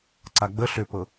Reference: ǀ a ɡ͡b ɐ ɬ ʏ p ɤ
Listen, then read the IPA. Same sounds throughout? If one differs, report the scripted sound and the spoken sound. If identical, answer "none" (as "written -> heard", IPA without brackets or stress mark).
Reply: ɐ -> ə